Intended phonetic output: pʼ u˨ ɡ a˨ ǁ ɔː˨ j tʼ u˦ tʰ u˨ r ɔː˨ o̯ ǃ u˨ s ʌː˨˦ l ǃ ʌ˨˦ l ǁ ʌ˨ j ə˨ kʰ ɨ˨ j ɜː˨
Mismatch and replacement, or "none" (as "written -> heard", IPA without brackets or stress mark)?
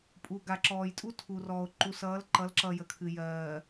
none